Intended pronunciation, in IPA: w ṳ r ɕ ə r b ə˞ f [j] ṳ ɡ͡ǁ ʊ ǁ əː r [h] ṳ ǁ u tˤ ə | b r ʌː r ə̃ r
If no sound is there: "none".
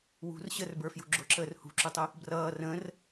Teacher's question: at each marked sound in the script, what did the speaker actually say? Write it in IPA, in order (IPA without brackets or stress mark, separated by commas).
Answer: j, h